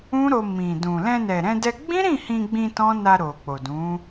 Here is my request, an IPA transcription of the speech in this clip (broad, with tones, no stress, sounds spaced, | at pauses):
ũ˦ ɾ o˧ m ĩ˨ d ũ˨ l ɛ̃˧ n ɛ˨ ɾ ɛ̃˧ d ɛ˧ ɡ͡b ĩ˦ ɾ ĩ˦˨ h ĩ˧ ɡ͡b ĩ˧ t ɔ̃˦ n a˧ ɾ o˨ k͡p o˨ d ũ˨˦